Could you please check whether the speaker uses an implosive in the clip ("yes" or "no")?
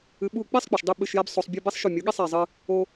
yes